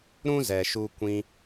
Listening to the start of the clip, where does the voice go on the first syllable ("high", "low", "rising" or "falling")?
high